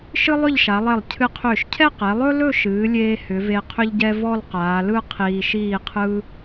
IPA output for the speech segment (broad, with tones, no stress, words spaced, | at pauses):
ʃɨ˥lˠʏ˥˧ʎʃa˩˧lˠɛ˧˩lˠ cʰɨ˧qʰʏː˧˩ʃcʰɛ˥˧qɛ˩˧ lˠɵ˥lɵ˥˧ʃɨː˩˧lʲeː˧ hʏ˩˧ve˧ qʰʏ˥ʎɟɛ˥ vɔ˥˧lqaː˩˧lɯ˥˧ qʰiː˧ʃiː˥˧qʰɯ˥